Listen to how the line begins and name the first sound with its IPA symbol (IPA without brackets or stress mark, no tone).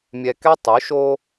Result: mʲ